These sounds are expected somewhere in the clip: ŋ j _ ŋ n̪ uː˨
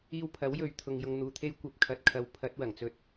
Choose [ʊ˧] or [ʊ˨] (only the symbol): ʊ˧